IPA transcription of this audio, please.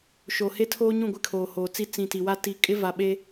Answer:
ʃoː˨he˦tʰoː˦ɲũ˦˨ ɡʷɪ˦kʰoː˨hoː˨t͡si˦ t͡sĩ˨ti˨wa˦ ti˨kʼɪ˦va˨ɓeː˦

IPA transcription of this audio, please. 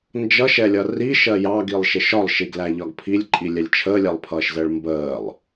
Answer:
nd͡ʒʌʃɛlʲʌ riʃɜ jɑɡilˠʃɪʃ ɒlˠʃiɡlæʎɒɡ pʰilʲǃʼilʲɛlʲ t͡ʃʰəːlʲɛlˠpʰʌːʃzəːɭ mbəːlˠ

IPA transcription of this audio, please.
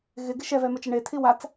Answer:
ɣɪɡɪ ʃɛvɛmət͡ʃə ɳetʰi wat͡s

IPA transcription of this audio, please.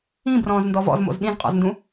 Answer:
ĩbrɔ̃ːzndɔ vɔ̰zmo̰z ɗĩzqʼɔ̰zndũ

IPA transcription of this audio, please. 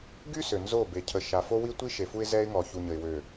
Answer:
ɡy˦ sø˨nzo˦˨be˨ cʰə˨ ʃa˨fo˦wi˦ tʷi˦ ʃe˨fu˦ɪ̯ zɛ˦ɪ̯ŋɔ˨ çu˨ɲə˨ɪ̯ wø˨

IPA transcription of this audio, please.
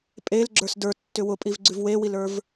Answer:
pʼelɡ͡ǁə˞s də˞tːʏ wʊpʼivɡ͡ǀʉv wewilə˞v

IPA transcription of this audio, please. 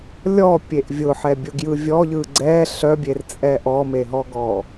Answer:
lʲɔpʲeʔ vʲʊħɛbʲʊɡjɯ vʲɔʎɯ ɡ͡ǀɛ ɬœbʲert͡sʼɛ ʔɔmeɦɔɡɔ

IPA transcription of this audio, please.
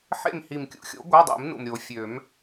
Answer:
ħḛ˦˨m hi˨˩mkʲṵ˦˥xʲo̰˩˥ ɡʷa˧˥˧dˤḭ˨˩˦m nṵ˨˩mɾʲo˨˩˦fʲø˨˩˦m

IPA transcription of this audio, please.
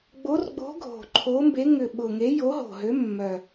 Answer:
ɡ͡bo˨˥rɡ͡bo̤˨˥ ɡʱo̤˨˩ǃʰo˨˥mbe˨˥ ŋʏ˨˩ɓʊ˨˩ŋe˨˥ jo˨˥ɦo̤˨˩ɦø˨˥ mːœ˨˩

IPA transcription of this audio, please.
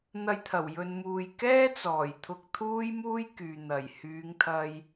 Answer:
n̪ɐ˧jt̪ʰɐ˨˩wjɵ˨nmuː˨j kɛː˥ t͡sɔː˨˩jt̪ʰʊ˧k̚t̪ʰuː˥jmuː˥j kyː˨n̪ɐ˨˩j hyː˨˧ŋt̪ʰɐ˧j

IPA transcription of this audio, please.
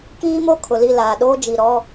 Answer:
kiː˦mo˦ kʰʊ˨li˦˨laː˨ɗoː˦ d͡ʒi˨ɾɔ˦

